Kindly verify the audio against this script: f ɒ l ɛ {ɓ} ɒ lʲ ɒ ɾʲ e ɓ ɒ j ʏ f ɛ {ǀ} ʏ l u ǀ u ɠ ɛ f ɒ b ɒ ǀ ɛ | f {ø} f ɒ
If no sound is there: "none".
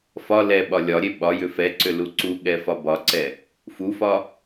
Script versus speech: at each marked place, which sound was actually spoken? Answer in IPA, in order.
ɓ, ǀ, u

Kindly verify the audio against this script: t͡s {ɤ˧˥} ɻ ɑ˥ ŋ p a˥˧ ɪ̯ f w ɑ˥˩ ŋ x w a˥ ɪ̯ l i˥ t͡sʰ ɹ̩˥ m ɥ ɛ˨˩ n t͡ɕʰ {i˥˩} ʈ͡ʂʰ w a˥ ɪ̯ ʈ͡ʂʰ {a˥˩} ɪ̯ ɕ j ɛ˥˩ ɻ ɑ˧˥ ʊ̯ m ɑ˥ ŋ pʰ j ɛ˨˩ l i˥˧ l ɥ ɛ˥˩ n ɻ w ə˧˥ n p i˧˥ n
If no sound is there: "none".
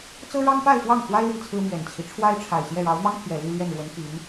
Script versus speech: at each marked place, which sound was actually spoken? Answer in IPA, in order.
ɤ˥, i˦, a˨˩

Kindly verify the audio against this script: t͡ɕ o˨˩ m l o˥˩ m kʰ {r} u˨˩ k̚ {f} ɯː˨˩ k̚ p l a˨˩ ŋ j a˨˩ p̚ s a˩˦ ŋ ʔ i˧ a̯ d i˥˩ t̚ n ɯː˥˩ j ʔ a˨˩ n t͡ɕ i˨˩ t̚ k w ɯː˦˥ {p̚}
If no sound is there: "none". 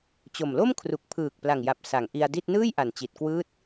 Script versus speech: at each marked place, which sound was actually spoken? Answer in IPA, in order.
r, pʰ, t̚

